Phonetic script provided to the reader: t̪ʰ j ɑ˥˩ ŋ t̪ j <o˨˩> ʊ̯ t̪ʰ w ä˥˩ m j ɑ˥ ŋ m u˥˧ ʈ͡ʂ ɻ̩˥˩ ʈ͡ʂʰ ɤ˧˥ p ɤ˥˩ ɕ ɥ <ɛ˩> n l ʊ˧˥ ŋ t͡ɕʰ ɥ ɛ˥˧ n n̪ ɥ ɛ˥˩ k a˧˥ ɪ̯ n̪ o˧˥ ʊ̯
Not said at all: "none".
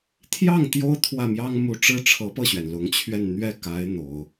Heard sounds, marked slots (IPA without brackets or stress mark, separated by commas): o˥, ɛ˩